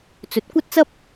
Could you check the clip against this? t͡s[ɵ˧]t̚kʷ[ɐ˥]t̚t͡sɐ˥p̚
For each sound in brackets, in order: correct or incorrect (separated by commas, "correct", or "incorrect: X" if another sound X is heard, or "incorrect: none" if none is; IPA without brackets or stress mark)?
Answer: incorrect: ɵ˨˥, correct